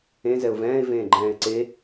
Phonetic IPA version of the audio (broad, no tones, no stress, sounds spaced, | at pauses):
ẽ z ɛ ʊ̯ v ɛ̃ː ɪ̯ v ẽː ɡ͡ǃ ɛ̃ː ɪ̯ ǀ e